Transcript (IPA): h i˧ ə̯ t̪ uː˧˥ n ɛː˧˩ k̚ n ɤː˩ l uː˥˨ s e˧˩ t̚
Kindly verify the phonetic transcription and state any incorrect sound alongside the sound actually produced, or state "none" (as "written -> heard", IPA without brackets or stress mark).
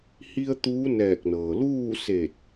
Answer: none